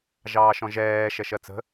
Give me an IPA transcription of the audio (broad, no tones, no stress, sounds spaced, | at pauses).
ʒ ɑː ʃ ɔ̃ ʒ ɛː ʃ ɛ ʃ ɜ t͡s ə̤